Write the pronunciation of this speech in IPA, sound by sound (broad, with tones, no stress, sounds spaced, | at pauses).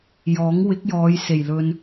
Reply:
j ɔː˨˥ ŋ w ɪ˨˥ k̚ j ɔː˨˧ j s e˨˩ j l ɵ˧ n